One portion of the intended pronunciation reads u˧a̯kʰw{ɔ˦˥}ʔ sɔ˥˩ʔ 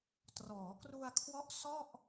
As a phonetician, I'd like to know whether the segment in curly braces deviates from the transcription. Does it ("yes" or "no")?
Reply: no